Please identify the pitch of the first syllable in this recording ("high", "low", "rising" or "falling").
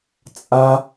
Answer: high